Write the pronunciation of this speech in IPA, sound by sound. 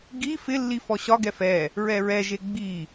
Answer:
ɡ i f ɪ lː i f ɔ ɕ ɒ ɡ ɛ f ɛ | ɹ ɛ ɹ ɛ ʒ e ɡ͡b i

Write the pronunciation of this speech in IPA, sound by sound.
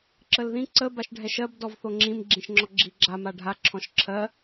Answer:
ǁ ə l ð ĩ ǀ ə b a ʃ ɖʱ ɛ ʃ ɜ b d ɔ v θ o ŋ͡ǁ ĩ m ɡ͡ǁ ĩ ʃ ŋ͡ǁ ɔ ɡ͡ǁ i ɡ͡ǁ a m a ɖʱ a ǁʰ ɔ̃ ʃ ǁʰ ɜ

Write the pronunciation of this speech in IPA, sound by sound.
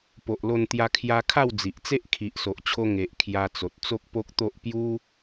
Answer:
p o˨ ʔ l o˧ n t̪ j a˧ kʰ j a˧ kʰ a˥˧ w d͡z i˨ ʔ t͡s e˦ ʔ kʰ i˨ ʔ s o˨ ʔ t͡ɕʰ o˧ ŋ e˨ ʔ kʰ j a˧ t͡s o˨ t̚ t͡s o˦ k̚ p o˦ k̚ t̪ o˦ ʔ p j u˦

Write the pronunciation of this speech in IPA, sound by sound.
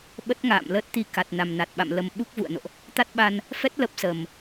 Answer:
ɓ ə˦˥ t̚ ŋ a̰ː˧˨ m l əː˦˥ t̚ t̪ i˧ k a˨˩ t̚ n a˨˩ m n a˨˩ t̚ ɓ a̰˧˨ m l ə˧ m ɓ u˦˥ k̚ v ṵ˧˨ ə̯ n o̰˧˨ ʔ | t̪ a˦˥ t̚ ɓ a˧ n | f ɛ˦˥ t̚ l ə˦˥ p̚ s ə˨˩ m

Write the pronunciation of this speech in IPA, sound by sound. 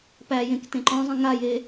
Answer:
p æ j ẽ k t ẽ ǃ ɔ̃ zˤ ĩ ŋ a j e

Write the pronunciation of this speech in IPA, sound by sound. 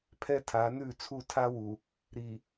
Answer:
pʰ ɛ˦ tʰ a˨˦ n ʉ˦˨ t͡sʰ u˦˨ tʰ a˦ w u˨ | ɾ i˨

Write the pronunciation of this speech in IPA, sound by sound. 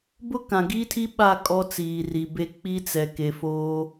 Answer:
b ʊ˦ k ã˨ ɡ iː˦ tʰ i˦ ɓ a˦˨ kʼ ɔ˦ t͡s iː˨ r i˨ b e˦ k͡p i˦ t͡s ɛ˨ k e˨ f oː˦

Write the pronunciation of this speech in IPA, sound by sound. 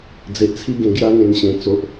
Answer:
d͡z e˨ ʔ t͡sʰ i˥˧ ɡ ẽ˧ ɡ j a˦ ŋ ẽ˧ n ɕ ẽ˨˩ t͡s o˨ ʔ

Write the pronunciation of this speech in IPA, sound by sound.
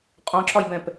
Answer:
qʼ ɔ̃ ǁ ɒ j b ɛ̃ p

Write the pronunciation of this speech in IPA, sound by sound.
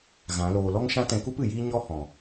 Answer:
ɣ ã˨˦ l oː˧ l ɔ˦ ŋ ʃ ã˦ t ɛ̃˧ k u˦ p ɨ˨ j iː˦ ɲ ɔ˦ h ɔ̃˨

